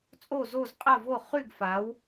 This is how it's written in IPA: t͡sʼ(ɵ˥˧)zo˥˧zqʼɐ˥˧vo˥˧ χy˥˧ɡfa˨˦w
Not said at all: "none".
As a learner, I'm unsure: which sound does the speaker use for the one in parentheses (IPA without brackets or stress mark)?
o˥˧